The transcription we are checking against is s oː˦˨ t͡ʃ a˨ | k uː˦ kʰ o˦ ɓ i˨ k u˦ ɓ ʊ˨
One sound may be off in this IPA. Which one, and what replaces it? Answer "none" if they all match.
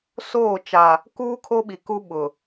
none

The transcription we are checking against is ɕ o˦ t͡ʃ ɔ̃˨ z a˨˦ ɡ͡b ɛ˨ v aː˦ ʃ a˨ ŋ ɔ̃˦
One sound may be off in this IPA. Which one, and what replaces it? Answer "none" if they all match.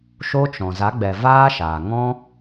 ɕ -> ʃ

